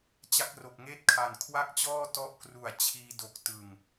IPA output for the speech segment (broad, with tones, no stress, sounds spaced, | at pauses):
t͡ɕ a˦˥ k̚ r o˨˩ k̚ ŋ eː˥˩ t̚ kʰ a˨˩ n kʰ w a˥˩ k̚ t͡ɕ ɔː˥˩ t ɔ˦˥ ʔ k r u˨˩ a̯ t͡ɕʰ iː˧ d o˨˩ k̚ t ɯ˨˩ ŋ